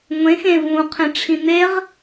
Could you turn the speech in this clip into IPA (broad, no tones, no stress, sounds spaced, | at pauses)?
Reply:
ŋʷ ẽ x ẽ v ũ qʰ ẽ ʈ͡ʂʰ ĩ n̪ e ʁ